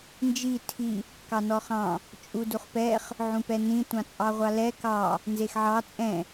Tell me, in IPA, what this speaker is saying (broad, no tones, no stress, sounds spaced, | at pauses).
n d͡ʒ i tʰ i | k ɑ n ɔ χ ɑ̃ | t͡ʃʼ u d u χ p ɛ χ | ʕ ũ p ɛ n ĩ tʷ ɑ̃ t͡sʼ ɑ ʁʷ ɑ l ɛ k ɑ | n z e x ʕ ɑ t͡sʼ ɛ̃